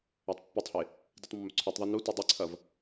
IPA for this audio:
a tˤ pː i tˤ h e | d i tˤ mː ɵ ǀʰ ʉ tˤ ðˤ ɐ n u t ʉ dˤ e ǀʰ ɐ v

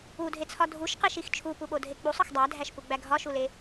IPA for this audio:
u dʱ e t͡sʰ ɒ dʱ u ʃ q e ʃ i x t͡ʃʰ u p u ɓ o dʱ e k͡p u sˤ ɒ x dˤ æ dʱ æ ʃ p u ɡ͡b æ ɡʱ ɒ ʃ u l e

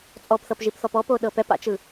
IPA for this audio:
t͡sʼ ɔ p θ ɤ p ʒ i p θ ɔ p ɔ p o ɗ ɤ p ɛ p a̰ t͡ʃ ɯ

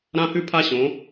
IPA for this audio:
ɾ ã˦˥ h ʉ˥˨ pʰ a˥˨ ɕ õ˩˧

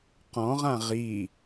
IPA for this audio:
q ɔ̃ ʁ ã ʁ i

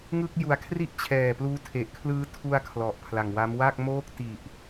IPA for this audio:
ŋ ɯ˥˩ k̚ j u˨˩ a̯ kʰ r i˥˩ ʔ t͡ɕʰ ɛː˨˩ p l uː˦˥ tʰ e˨˩ ʔ kʰ l ɯː˦˥ tʰ u˧ a̯ kʰ l ɔ˨˩ ʔ pʰ l a˨˩ ŋ w a˦˥ m w a˥˩ k̚ m oː˥˩ k̚ t i˨˩ ʔ

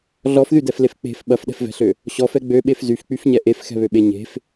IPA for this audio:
ɮ ɔ f ð y d ɛ f l e f k͡p e̤ f ɓ ɐ f ɗ ɛ̤ f v ɛ̤ ɬ ø | ɕ ɔ f ɛ ɡ͡b ø ɓ e f z y f k͡p y f ɲ ɛ ʔ e f x ɛ̤ β ø ɓ e ɲ e̤ f

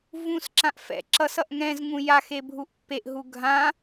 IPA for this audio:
v ũ s ǁ ã ʔ f ɛ̰ ǁ ʌ s ʌ ʔ ŋ ɛ̃ z ŋ ũ j a x e bʱ u ʔ pː e ʔ ɦ u ɡʱ ã

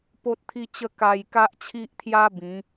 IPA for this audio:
p o˦ t̚ t̪ʰ i˦ t͡ɕ ə˦ k a˧ j k a˦ ʔ t͡ɕʰ i˦ ʔ t̪ʰ j a˦ b ĩ˨˦

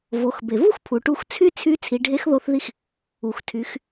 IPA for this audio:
v o˩˧ x b e˩ v u˥ x pʰ u˩ ʈ u˧ x t͡sʰ y˥ t͡sʰ y˧˥ t͡sʰ i˩˧ ɖʱ e˧˥ x ð o˧ θ ð i˧ x | u˩ x tʰ y˩˧ x

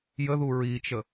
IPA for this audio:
j ə ð u ɹ i t͡ʃ ə

